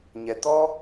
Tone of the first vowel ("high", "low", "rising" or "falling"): low